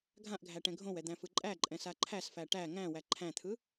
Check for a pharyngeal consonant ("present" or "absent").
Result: absent